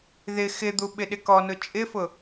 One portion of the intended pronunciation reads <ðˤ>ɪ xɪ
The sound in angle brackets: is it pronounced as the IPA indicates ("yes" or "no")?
no